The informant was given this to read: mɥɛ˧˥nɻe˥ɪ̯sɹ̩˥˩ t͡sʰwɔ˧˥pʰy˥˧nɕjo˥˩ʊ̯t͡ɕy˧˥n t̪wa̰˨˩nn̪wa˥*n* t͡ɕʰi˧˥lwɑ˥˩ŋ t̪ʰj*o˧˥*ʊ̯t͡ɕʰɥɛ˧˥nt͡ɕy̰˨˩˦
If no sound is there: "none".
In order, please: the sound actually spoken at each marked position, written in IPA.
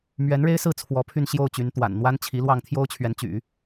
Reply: n, o˥

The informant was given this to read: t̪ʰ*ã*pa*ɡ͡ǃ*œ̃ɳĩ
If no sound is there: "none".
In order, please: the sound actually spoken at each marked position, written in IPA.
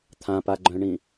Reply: ã, ɡ͡ǃ

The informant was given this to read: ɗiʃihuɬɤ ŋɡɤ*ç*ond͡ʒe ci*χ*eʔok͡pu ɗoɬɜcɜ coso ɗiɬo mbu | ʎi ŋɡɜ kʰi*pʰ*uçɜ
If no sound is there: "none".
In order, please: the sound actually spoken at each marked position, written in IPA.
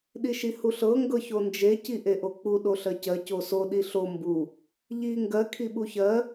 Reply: ç, ʔ, ɓ

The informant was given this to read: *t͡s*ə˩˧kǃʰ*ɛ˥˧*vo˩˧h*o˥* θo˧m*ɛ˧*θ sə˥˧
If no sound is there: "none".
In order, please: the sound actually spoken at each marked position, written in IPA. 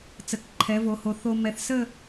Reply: t͡s, ɛ˩˧, o˩˧, ɛ˧

